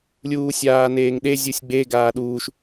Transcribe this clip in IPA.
lʲ uː sʲ aː n eː ŋ ɗ e zʲ u sʲ ɡ͡b e ɡ aː ɗ uː ʃ

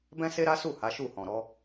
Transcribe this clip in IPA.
b ɛ̃˦ s e˦ ɾ a˦ s u˦˨ h a˨˦ ʃ u˦˨ h ɔ̃˨ ɾ ɔ˨˦

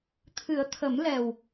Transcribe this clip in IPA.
t̪ʰ ɨ˨˩˦ ə̯ t̪ʰ ə˨˩˦ m l ɛ˨˩ w

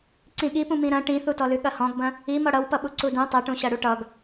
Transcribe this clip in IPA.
ǀ ĩ ɠ i p ũ m ĩ ɾ ɐ̃ ʈ ĩ θ u t ɔ l ʉ ɠ ɐ h ɔ̃ ɡ b ɐ̃ | i m ɔ ɽ ʌ w p ʌ ɓ u ǀ u d ũ tˤ ʌ ʈ ũ ɕ ɐ ɽ u ʈ ʌ ɡ

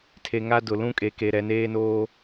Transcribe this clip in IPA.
tʰ e˨ ŋ a˦ d ʊ˨ l ũ˦ kʼ e˨ k e˨ ɾ ɛ˨ n eː˦ n oː˦

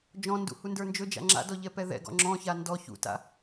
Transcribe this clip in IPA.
d͡ʒ ɔ̃ n d ṵ h u n d ə˞ n d͡ʒ ɵ d͡ʒ a̰ ŋ͡ǁ a̰ d ɔ ʎ ɛ p ɛ ð ɛ̰ ɡ ɔ̰ ŋ͡ǁ ɔ̃ ç a n d ɔ ç ṵ t a̰

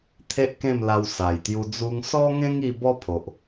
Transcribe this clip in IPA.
t̪ʰ e˦ ʔ k ẽ˥˧ m l a˧ w s a˨˩ j t̪ j u˧ d͡z u˧ ŋ s ɔ˦ ŋ ẽ˦ ŋ i˧ b ɔ˦ pʰ o˨ ʔ

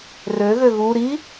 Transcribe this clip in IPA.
r ø ɣ ø ɣ u ɾ i

